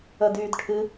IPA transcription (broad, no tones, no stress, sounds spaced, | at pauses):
ə d yː d ʈʰ ɨ